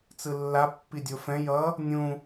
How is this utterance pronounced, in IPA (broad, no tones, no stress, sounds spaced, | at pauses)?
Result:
t͡s ɯ lː a pː i dʲ o f ɛ̃ j ʌ | nʲ ũ